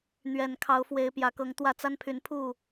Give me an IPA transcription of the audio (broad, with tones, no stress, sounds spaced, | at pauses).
n̪ ɥ ɛ˨˩ n kʰ ɑ˨˦ ʊ̯ f w e˨˦ ɪ̯ p j ä˨˩ k ɤ˨˦ ŋ t̪ w ä˥˨ t͡s a˦ n pʰ y˨˦ n pʰ u˥˨